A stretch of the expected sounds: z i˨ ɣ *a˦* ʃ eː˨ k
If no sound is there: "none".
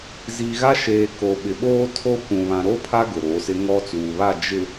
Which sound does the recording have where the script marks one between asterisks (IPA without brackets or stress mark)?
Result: a˦